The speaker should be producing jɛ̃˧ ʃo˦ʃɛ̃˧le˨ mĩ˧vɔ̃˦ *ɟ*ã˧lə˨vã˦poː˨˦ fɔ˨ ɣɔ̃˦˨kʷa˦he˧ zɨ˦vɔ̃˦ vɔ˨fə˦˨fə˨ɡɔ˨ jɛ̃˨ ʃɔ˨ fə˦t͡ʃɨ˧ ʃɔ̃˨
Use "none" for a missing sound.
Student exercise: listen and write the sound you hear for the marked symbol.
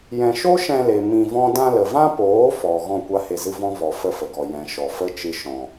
d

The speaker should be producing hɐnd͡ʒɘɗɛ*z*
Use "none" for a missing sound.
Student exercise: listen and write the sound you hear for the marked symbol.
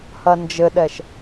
ʃ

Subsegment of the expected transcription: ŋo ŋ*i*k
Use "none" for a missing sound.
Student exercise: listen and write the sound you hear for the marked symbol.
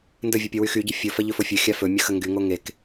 e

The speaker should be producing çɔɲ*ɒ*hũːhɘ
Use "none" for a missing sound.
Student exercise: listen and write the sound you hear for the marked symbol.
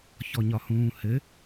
ɒ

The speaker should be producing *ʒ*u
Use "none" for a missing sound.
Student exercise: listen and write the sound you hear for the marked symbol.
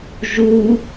ʒ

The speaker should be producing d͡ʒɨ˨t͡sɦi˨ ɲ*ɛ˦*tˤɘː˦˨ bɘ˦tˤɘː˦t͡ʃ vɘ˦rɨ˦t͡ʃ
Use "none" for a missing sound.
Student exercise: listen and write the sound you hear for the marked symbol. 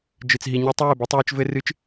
ɛ˦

